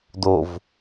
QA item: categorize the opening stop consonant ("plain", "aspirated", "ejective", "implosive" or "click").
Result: plain